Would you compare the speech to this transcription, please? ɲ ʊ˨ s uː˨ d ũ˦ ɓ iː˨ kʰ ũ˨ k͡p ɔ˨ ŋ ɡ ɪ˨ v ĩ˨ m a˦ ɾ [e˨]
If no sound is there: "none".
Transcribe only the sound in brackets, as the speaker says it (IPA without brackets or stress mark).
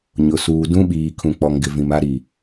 i˨